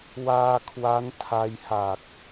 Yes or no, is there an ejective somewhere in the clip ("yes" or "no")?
no